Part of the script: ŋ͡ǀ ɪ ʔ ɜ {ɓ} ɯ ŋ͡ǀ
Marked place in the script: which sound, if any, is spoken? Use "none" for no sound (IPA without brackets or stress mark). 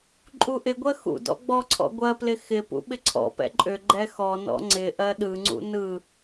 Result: ɗ